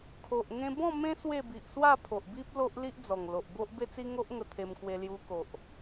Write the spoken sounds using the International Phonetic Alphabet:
kʰ o˨ ʔ ŋ ẽ˧ b ɔ̃˥˧ m ẽ˦ s w e˥˧ b i˨ ʔ s w a˥˧ pʰ o˨ ʔ b i˦ p̚ l o˦ ʔ l i˦ ʔ d͡z ɔ˨˩ ŋ l o˨ ʔ b o˦ ʔ b e˦ t͡s i˦ ŋ o˦ ʔ ŋ ə˧ t̪ʰ e˧ m k w e˧ l j u˧ k o˨ ʔ

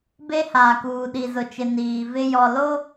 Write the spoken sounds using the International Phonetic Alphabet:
b e˦ h aː˨ k uː˨ ɗ i˨ z ʊ˨ t͡ʃ ɪ˨ n iː˨ v ɪ˦ j ɔ˨ l o˦

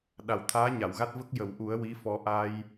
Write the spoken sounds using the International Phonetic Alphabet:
ɗ a˨˩ w t̪ʰ aː˧˥ ɲ a˨˩˨ w ɣ a˦˥ t̚ v ə˦˥ k̚ j ə˨˩˨ w ʔ u˨˩˦ ə̯ w i˧˥ f ɔ˧ ʔ a˧ j

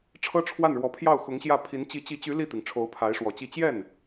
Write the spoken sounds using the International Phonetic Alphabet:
ʈ͡ʂʰ ɤ˥ ʈ͡ʂʰ w a˥˩ n ɻ w ɔ˧˥ pʰ j ɑ˥˩ ʊ̯ x ʊ˧˥ ŋ ɕ j ä˥˩ pʰ i˧˥ n t͡ɕ i˧˥ t͡ɕ i˧˥ t͡ɕ y˧˥ l i˥˩ t̪ i˩ ŋ ʈ͡ʂʰ o˧˥ ʊ̯ pʰ a˧˥ ɪ̯ ʂ w ɔ˨˩ t͡ɕ i˥˧ t͡ɕ j ɛ˥˩ n

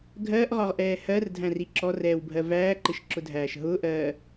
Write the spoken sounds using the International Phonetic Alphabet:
ɡʱ ɜː ʔ ʁ ɒ ʁ ʔ ɛː h ɜ r dʱ æ̃ r i ǁ ɔ r ɛː w bʱ ɜ v æː ǃ ɪ ʃ ǁ ʊ dʱ æː ʃ ɦ ʊ ʔ ɜː

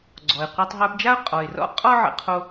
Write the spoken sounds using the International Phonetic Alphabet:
ɡ͡ǀ ɔ˩ ɪ̯ qʷ e˧ tˤ ɦ ə˞˧ p d͡ʒ a˥ ʊ̯ qʼ ɔ˩ ɪ̯ r ɔ̰˥ qʼ ɔ˥ ʕ ə̰˧ qʰ o˧

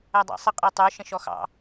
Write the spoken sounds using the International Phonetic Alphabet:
æ dˤ ɑ̰ sˤ ə qʼ ɛ tˤ ə˞ ʃ ə̃ ʃ ɔ x ɑ̰

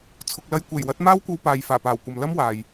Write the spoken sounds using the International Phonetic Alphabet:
t͡sʰ ʊ˨ k̚ l ɐ˧ j kʷ e˨˩ j w ɐ˨˥ t̚ m aː˥ w kʷ ɐ˧ w p aː˨ j f aː˨˩ p aː˨˩ w kʷ ɐ˨ m l ɐ˥ m w aː˨ j

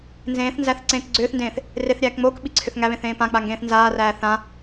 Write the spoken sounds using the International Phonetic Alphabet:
n z ẽː θ n z æ θ ǀ ẽː k ɡ͡ǀ ʏː θ n d ẽː θ | r e θ ɾʲ æː k ŋ͡m oː k ɓ i ǀʰ ʏ θ ŋ æ β ẽ θ ẽː p ã k͡p a ŋ ɡ ẽː θ n z aː r æː θ ã

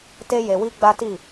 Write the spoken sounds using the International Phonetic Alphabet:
t e˦ j e˧ w i˦ ɡ͡b a˦ t i˦˨

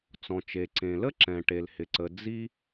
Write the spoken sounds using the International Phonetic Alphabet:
t͡s ɔ̃˩ t͡ʃ e˩ ǀ ẽ˩ l ə˥ ǁ ɛ̃˩ ʈ e˩ l h ɪ˩ ǀ ə˩ d͡z i˥

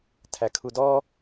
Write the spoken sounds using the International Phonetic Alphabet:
tʰ æ kʰ u d ɔ

